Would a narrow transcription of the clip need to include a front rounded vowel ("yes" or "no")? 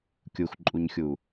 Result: no